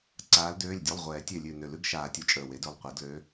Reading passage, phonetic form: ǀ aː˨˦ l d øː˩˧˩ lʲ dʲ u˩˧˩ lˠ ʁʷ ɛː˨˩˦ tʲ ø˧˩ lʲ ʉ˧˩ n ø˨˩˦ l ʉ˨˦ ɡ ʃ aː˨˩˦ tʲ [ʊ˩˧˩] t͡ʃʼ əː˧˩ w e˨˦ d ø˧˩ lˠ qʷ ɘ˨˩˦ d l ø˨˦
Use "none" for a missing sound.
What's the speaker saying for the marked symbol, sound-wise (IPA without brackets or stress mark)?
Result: u˩˧˩